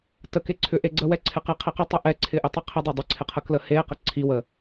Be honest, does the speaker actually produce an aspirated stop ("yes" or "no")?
yes